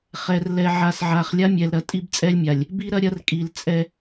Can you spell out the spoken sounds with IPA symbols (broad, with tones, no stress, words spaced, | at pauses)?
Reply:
χɛ˨rlɛ˨ ʕa˨sʕa˨χlʲa˦ mʲɛ˨lɾɐ˨ tʼi˦bt͡sʼɛ˦lʲmʲa˨lʲ | bi˦ɾɐ˦ɾʲɐ˦rkʼi˨l t͡sʼɛ˦